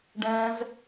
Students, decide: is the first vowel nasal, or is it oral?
nasal